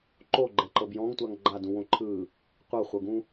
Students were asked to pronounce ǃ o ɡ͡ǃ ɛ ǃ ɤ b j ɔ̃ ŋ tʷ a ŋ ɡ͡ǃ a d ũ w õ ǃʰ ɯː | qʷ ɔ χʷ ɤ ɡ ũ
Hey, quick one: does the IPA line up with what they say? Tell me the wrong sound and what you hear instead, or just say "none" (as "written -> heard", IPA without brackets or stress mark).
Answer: ɔ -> ɤ